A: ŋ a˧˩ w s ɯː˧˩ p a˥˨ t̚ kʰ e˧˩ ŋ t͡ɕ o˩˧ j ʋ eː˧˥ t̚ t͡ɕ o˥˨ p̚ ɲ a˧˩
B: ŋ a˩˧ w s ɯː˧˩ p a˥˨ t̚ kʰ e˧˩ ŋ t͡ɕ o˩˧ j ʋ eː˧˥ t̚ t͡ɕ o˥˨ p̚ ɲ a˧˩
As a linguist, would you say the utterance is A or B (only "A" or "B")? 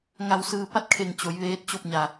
A